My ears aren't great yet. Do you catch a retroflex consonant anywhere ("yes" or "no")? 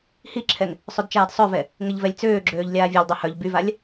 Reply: no